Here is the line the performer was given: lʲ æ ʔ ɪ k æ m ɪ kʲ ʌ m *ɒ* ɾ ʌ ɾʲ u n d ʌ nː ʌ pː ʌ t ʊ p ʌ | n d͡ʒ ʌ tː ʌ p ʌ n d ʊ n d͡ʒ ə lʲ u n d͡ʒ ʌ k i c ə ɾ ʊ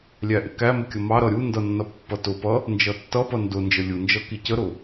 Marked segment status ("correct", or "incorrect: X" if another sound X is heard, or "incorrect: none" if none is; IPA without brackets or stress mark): incorrect: ɑ